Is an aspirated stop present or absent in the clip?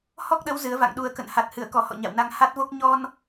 absent